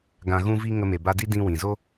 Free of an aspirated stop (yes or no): yes